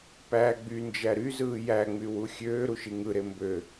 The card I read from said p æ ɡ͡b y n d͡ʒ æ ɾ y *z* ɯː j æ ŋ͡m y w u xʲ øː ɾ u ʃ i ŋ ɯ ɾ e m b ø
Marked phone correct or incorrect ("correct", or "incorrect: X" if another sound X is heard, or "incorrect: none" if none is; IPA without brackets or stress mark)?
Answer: correct